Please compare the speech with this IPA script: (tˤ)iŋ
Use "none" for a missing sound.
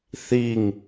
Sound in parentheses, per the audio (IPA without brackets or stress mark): θ